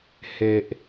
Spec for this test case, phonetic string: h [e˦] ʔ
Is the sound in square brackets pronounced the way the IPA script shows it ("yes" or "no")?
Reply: no